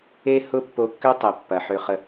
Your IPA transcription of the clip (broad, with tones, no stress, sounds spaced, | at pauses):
e˦ h ʊ˦ pː o˧ kː ø˦ tˤ ɛ˨ pː ɐ˨ ħ ø˧ χ ə˧